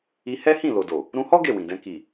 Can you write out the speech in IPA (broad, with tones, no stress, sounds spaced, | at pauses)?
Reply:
i˧ h ɛ˦ h ĩ˦˨ l o˨ d o˨ | ɾ ũ˧ h ɔ˦ ɡ e˦˨ w ĩ˨ d ɛ̃˧ k i˨